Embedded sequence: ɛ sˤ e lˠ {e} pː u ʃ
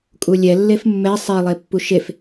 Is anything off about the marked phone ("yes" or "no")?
no